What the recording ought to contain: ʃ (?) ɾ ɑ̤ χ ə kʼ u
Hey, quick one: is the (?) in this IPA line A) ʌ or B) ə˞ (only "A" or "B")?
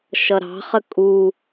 A